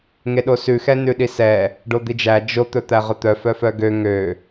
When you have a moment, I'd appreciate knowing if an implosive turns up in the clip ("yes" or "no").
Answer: yes